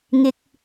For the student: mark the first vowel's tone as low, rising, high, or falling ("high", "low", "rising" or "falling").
low